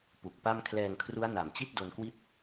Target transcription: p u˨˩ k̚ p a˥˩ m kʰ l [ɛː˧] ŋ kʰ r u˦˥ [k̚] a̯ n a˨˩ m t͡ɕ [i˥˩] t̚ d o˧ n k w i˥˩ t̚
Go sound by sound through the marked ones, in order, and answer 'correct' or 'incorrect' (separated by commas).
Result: correct, incorrect, correct